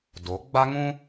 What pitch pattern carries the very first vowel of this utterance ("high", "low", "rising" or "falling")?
rising